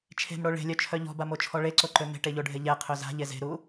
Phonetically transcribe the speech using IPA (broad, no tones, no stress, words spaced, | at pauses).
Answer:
t͡ʃʰe̤mɽo ɭe̤lʲœt͡ʃʰœ ʎɔ̤bamot͡ʃʰɔ ɭeǀoǃø me̤ʈeʎoɖʱe ʎɛqʰø za̤ʎe ze̤ɾu